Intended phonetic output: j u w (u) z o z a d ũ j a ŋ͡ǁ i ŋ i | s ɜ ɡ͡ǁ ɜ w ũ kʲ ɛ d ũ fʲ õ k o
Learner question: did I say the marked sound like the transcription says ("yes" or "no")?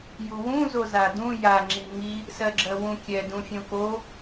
no